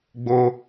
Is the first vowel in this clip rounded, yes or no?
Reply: yes